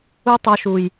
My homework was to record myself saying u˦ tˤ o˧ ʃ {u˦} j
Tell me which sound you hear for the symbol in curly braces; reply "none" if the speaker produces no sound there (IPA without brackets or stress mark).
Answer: u˨